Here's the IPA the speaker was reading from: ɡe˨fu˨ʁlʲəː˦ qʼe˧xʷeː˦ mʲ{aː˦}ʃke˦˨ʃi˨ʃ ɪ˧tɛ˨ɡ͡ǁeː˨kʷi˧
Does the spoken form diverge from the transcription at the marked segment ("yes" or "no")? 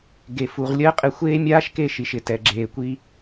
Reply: no